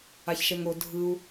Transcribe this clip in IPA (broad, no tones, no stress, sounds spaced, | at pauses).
a ç ʃ ɛ ŋ o dʱ ɯ u̯